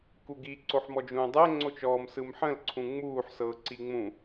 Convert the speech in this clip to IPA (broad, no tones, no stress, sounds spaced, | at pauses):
k u ɡ i ǀ o ħ m ɔ d͡ʒ ũː dˤ ɛ ŋ͡ǀ o t͡ʃ ɔː m s ɯ m ħ ə̃ l ǀʰ ũ ŋ͡m uː ħ s ɤː ǀ i ŋ͡m ũ